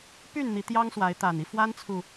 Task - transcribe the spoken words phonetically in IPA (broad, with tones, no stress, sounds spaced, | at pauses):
p y˥˨ n n̪ i˨˦ t̪ j ɑ˦ ŋ s w a˨˦ ɪ̯ t̪ a˨˩ n i˦ f w a˦ n t͡sʰ u˨